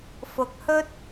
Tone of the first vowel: rising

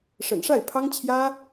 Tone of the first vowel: low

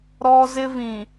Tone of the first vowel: high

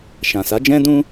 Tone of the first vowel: low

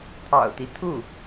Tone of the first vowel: low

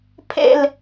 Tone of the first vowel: falling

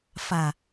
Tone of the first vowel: low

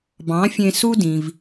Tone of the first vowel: rising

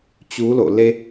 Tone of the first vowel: rising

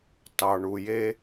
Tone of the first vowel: low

